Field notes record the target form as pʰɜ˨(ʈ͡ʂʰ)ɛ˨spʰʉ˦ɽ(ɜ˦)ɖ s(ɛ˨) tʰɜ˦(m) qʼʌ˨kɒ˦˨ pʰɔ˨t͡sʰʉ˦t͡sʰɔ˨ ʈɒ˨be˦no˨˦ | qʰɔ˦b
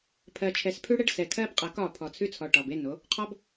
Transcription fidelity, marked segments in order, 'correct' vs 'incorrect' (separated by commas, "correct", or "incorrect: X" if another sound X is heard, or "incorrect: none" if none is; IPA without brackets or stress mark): incorrect: t͡ʃʰ, incorrect: ɛ˦, correct, incorrect: b